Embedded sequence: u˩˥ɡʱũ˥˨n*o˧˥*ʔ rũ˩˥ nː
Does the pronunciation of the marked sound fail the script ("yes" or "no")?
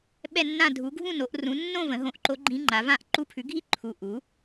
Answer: yes